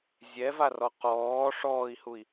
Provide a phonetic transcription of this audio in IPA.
zʲ ɛ v a r ɔ q ɔː ʂ ɔː i̯ h u i̯

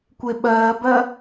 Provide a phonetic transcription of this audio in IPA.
kʷ e ɓ ɜː b ɜ

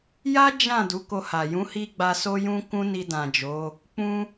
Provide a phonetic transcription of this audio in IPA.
j a˦ d͡ʒ ã˦˨ d u˨˦ k o˧ h a˨ j ũ˨˦ h i˧ ɡ͡b a˧ s o˦ j ũ˦ k ũ˦ n i˧ d ã˨ d͡ʒ o˨˦ | k͡p ũ˦

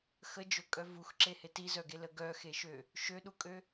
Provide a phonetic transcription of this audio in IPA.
x ə d͡ʒ ɵ kʼ œ v u x ǁ e h e t i z œ ɡ e l ə ɡ œ x e ʃ ø | ʃ ø ɗ u kʼ ø

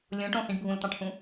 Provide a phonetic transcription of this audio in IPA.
lʲ õ ʈ õ h ĩ ɖ bʱ ũ l t̪ ɑ̃ ʈ h ũ

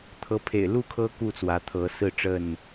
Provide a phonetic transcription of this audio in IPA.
t̪ʰ ɤ˦ pʰ ḛ˨˩ ɪ̯ l u˥˨ kʰ ɤ˦ k u˥˨ t͡s w ä˨˦ t̪ʰ ɤ˨˦ s ɹ̩˥˨ ʈ͡ʂ ə˥˨ n

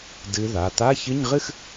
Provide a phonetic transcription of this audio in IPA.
d ɨ˦˥ ð a˩˧˩ t̪ a˧˥˧ ç ɨ˧˥˧ ɲ ʁ ɨ˥˧ x

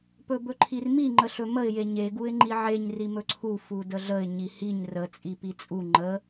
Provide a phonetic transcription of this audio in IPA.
p ɵ b ɵ ǃʰ i r m i ŋ͡ǃ ə ɬ ɵ m ə ɪ̯ j e ɲ e ɡ u ɪ̯ ŋ͡ǃ i ʕ e ɲ r i m ɵ ǀʰ u f u d ə ɮ ə ɪ̯ ɲ i h i ɲ r ə t͡sʼ i p i t͡sʼ u ŋ͡ǃ ə

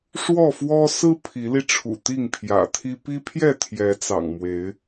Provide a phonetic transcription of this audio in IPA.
ʂ w ɔ˥˨ f w ɔ˦ s ɹ̩˦ pʰ i˨˦ l i˧ ʈ͡ʂʰ ṵ˨˩ t̪ i˥˨ ŋ pʰ j ä̰˨˩ t̪ʰ i˦ p i˦ pʰ j ɛ˥˨ t̪ʰ j ɛ˨˦ t͡s ɑ̰˨˩ ŋ m w e˨˦ ɪ̯

